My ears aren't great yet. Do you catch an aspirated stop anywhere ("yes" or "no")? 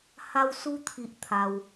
yes